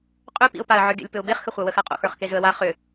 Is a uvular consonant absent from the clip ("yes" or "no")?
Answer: no